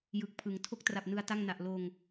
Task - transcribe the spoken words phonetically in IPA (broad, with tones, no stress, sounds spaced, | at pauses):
j ɯ˨˩ k̚ pʰ ɯ˩˦ ŋ tʰ o˦˥ k̚ t r a˨˩ p̚ n ɯ˦˥ a̯ t a˥˩ ŋ n a˨˩ ʔ l oː˧ ŋ